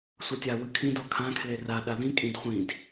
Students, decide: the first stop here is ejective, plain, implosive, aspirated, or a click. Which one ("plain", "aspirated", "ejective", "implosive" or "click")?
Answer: plain